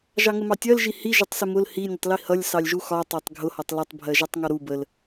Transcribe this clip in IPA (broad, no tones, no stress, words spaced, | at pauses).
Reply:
ʒɑŋəmɑtʲɜl ʒihi ʒʊtˤsɪmʊl hi nʲʊtˤlihʌlʲ sɑlʲʒuxɒ tˤætˤɡʱʊ hɒtˤlʌtˤ bʱɜʒætˤŋɒɾu bəl